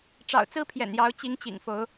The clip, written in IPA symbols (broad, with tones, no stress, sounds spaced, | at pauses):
ʈ͡ʂ ɑ̰˨˩ ʊ̯ t͡s ɹ̩˦ pʰ j ɛ̰˨˩ n j ɑ˨˦ ʊ̯ t͡ɕ i˨˦ ŋ t͡ɕ ḭ˨˩ ŋ f o˨˦ ʊ̯